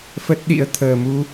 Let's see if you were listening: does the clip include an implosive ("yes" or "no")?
yes